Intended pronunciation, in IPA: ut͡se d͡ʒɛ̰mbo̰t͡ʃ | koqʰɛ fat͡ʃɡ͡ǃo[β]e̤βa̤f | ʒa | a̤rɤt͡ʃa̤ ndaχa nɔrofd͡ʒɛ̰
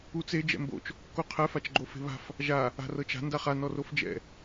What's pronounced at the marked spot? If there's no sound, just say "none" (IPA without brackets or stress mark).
f